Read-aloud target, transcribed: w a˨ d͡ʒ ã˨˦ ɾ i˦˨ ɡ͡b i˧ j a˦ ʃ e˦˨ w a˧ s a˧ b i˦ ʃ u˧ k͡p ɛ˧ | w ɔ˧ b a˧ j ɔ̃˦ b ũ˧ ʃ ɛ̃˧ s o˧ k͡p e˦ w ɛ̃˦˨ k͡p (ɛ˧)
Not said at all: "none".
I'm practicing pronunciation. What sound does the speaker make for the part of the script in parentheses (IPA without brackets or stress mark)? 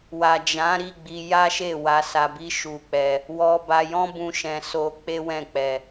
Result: ɛ˧